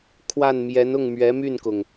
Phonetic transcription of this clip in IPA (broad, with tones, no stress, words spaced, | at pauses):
kʰwa˥˩nmjɛ˧˥n ʊ˥˩ŋmɥɛ˧˥my˥˩nkʊ˩ŋ